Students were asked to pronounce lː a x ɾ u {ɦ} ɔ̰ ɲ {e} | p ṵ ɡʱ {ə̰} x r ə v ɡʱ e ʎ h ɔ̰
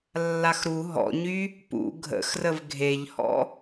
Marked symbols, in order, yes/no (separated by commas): yes, no, yes